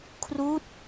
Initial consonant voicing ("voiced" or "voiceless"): voiceless